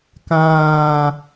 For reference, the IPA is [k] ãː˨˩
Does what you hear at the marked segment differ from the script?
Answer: no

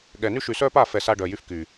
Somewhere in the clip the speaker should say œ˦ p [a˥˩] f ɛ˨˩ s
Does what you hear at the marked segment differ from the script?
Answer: no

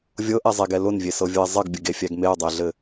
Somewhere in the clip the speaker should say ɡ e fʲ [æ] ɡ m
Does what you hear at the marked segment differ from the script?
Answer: no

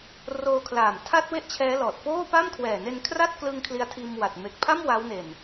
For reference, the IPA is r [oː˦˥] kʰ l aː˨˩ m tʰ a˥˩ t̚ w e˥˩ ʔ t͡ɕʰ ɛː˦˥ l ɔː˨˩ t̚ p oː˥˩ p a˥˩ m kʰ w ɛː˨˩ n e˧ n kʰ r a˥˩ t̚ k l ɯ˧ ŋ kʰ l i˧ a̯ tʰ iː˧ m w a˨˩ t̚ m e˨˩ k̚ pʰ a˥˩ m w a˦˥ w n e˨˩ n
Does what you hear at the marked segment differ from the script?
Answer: yes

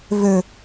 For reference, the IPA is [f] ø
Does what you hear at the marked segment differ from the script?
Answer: yes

